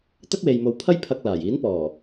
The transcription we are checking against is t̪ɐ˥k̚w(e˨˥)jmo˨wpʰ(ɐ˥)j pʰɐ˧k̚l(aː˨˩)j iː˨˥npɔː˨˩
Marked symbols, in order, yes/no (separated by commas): no, yes, yes